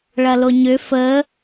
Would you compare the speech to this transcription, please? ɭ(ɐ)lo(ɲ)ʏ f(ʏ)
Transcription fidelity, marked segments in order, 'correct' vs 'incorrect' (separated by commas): correct, correct, incorrect